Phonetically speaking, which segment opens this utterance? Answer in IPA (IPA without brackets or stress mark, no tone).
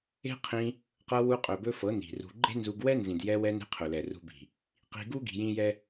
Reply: e̤